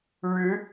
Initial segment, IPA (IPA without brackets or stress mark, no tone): ɻ